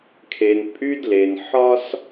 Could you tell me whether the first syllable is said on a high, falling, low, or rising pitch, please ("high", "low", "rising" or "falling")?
low